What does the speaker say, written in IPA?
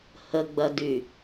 h ə ɡ͡b ɐ d y

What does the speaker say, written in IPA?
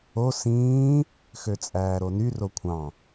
o s ĩː | x ø t͡sʼ æː ɾ o n y r o kʷʰ ɑ̃

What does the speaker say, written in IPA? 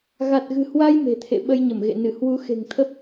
ɣ a˨˩ t̚ ɣ ɨ̤˨˩ h w a˧ j m e̤˨˩ t̪ʰ ḛ˧˨ ɓ ə˧ j ɲ ə˧˩ m ɣ ḛ˧˨ n ɨ˧˩ h w u˨˦ x e̤˨˩ ŋ t̪ʰ ə˦˥ p̚

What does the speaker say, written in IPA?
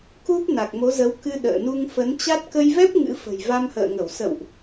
k u˦˥ p̚ n a˨˩ k̚ m o˨˦ z ə˨˦ w k ɨ˧ ɗ ə̰ː˧˨ n u˧ ŋ f ə˨˦ n t͡ɕ a˦˥ t̚ k ə˧ j v ɛ˦˥ p̚ ŋ ɨ̰˧˥ f ə̤˨˩ j v a˧ m h ə̰ː˧˨ ŋ ə˧˩ w s ə̰˧˨ w ʔ

